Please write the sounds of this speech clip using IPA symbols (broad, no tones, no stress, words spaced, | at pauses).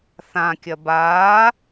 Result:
θãkʲɐ baː